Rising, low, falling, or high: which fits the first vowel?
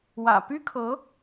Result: low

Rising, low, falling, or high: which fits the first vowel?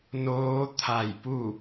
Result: rising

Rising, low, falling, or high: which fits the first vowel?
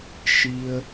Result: low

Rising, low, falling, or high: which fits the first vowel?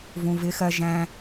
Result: low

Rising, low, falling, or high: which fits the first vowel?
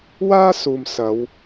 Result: high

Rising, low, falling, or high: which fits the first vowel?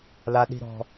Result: high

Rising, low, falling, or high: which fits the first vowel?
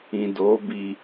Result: low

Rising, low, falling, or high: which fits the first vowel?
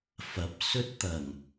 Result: rising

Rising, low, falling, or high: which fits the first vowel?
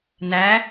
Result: rising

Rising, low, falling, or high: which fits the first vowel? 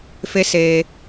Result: high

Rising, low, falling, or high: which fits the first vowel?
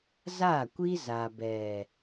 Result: falling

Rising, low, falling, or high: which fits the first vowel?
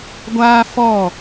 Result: high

